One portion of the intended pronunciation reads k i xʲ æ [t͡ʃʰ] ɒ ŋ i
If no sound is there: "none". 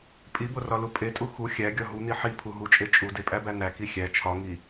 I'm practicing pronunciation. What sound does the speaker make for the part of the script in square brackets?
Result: t͡ʃʰ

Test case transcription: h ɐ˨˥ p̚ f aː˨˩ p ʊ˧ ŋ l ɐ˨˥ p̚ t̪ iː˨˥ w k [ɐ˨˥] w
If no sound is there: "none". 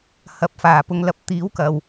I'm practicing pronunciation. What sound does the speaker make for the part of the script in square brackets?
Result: ɐ˨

